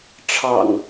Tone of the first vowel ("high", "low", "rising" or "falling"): low